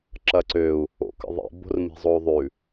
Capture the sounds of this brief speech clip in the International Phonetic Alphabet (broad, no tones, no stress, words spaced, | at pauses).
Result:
ǁɐǀøu̯ | o̰kə̰ðˤḭ bo̤rmi̤zˤou̯ðˤʉ